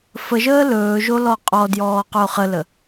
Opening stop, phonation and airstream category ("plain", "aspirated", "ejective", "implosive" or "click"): ejective